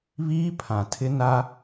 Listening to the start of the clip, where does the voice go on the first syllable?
high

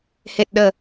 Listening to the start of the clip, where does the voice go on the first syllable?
low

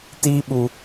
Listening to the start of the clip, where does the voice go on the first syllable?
high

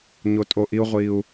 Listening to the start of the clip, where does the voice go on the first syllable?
low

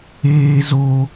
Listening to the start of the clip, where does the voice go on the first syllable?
high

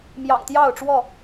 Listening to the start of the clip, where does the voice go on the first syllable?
low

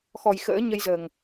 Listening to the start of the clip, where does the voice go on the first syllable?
low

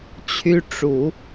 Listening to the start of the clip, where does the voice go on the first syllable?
high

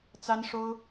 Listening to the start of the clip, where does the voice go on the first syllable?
high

